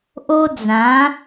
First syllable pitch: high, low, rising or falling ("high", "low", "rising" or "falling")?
high